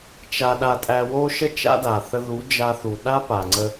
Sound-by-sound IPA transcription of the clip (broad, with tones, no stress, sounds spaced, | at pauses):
t͡ʃ a˦ ɗ a˦ tʼ æ˧ w o˦ ʃ ə˦ t͡ʃ a̰˦ d a˨ θ ə˧ ð u˨˦ d͡ʒ a˧ θ u˨ ɗ a˦ p a˨ ŋ͡ǀ ə˧